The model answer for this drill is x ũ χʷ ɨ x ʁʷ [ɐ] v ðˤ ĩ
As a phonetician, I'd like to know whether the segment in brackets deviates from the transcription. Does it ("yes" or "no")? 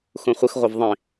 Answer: no